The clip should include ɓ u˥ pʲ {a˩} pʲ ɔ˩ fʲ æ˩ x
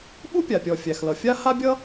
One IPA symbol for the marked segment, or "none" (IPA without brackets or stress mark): a˩